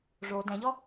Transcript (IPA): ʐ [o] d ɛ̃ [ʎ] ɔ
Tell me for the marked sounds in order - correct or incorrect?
correct, correct

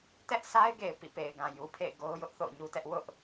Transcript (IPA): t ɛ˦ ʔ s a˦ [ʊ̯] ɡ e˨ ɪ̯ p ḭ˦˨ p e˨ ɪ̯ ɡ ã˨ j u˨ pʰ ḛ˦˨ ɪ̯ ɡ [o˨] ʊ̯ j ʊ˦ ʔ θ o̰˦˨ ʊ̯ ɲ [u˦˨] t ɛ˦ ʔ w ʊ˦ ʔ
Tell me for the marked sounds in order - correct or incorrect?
incorrect: ɪ̯, incorrect: o˦, incorrect: u˦

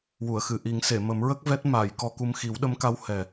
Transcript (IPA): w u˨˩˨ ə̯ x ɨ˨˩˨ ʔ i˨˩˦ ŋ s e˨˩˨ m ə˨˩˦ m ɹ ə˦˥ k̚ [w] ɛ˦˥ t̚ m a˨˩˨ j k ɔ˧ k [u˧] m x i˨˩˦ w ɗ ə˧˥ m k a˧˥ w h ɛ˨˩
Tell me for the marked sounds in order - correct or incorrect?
incorrect: v, correct

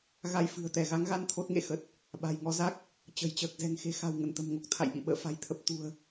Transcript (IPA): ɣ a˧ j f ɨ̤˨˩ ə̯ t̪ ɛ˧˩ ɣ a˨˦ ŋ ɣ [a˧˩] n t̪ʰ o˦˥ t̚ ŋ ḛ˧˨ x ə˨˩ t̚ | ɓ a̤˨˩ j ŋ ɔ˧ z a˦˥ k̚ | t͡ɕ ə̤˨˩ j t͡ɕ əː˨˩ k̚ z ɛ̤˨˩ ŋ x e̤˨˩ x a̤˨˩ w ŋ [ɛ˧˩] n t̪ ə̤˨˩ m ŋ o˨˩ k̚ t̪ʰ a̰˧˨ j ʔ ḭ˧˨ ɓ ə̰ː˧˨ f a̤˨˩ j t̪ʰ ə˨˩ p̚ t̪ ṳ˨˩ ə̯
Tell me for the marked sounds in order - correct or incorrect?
incorrect: a˧, incorrect: ə˧˩

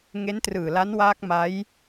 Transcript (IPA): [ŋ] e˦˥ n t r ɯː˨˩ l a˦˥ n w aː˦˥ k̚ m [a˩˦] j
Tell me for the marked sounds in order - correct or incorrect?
correct, incorrect: a˦˥

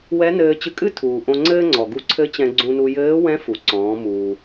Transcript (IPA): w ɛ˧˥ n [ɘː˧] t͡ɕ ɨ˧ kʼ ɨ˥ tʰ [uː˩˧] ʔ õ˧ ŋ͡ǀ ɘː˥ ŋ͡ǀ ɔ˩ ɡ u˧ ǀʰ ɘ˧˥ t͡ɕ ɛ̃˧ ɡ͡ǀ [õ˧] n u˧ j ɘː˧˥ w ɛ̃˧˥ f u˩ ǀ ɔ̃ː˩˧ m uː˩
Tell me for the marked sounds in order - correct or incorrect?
correct, incorrect: uː˩, incorrect: ũ˧

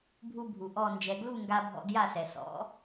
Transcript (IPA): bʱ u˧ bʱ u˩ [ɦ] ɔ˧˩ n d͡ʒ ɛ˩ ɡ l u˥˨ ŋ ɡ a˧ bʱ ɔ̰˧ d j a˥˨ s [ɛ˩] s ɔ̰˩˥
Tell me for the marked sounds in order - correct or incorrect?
incorrect: ʔ, correct

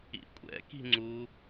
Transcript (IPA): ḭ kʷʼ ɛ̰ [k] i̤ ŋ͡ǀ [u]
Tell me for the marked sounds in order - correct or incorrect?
correct, correct

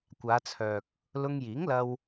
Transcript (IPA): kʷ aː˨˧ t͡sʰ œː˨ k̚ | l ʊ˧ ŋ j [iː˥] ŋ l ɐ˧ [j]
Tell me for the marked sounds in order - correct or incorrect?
incorrect: iː˨˥, incorrect: w

